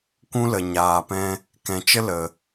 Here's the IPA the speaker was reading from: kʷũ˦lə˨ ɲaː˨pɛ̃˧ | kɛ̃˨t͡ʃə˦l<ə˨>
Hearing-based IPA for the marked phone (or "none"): ə˨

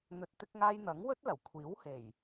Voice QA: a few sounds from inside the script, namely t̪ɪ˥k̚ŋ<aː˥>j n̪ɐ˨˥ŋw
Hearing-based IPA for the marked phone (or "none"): aː˥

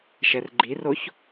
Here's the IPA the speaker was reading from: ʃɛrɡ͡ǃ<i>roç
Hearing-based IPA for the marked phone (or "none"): i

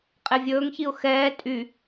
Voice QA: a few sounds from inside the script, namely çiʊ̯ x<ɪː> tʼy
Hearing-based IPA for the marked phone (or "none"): ɛː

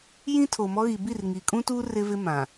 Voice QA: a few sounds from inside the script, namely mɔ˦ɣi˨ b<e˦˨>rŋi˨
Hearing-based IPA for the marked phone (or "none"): i˦˨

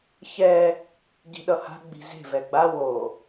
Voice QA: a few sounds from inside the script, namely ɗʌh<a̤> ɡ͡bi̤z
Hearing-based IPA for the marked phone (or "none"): a̤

